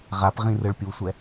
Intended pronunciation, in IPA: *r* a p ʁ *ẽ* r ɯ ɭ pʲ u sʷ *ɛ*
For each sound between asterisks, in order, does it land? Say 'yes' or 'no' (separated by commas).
no, no, yes